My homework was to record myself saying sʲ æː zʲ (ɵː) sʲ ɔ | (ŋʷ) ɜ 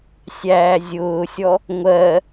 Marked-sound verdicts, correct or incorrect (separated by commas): incorrect, correct